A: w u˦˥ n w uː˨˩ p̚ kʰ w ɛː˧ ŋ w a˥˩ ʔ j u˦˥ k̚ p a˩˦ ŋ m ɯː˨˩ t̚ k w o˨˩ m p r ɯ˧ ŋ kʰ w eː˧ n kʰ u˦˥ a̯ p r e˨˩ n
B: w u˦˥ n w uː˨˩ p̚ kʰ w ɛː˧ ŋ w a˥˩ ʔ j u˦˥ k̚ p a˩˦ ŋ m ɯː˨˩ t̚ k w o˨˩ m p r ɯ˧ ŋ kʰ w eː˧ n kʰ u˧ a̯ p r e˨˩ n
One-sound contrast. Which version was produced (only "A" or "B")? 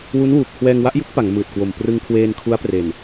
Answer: A